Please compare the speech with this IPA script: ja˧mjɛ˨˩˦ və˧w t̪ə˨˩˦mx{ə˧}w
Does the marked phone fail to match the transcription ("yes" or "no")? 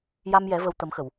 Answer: yes